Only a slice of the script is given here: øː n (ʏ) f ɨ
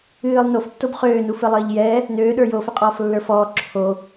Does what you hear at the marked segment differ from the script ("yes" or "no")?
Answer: yes